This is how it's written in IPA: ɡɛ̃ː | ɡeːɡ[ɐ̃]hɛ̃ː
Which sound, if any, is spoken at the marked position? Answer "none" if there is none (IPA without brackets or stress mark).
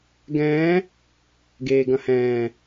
ɐ̃